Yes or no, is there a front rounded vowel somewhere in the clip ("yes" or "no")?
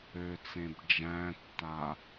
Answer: yes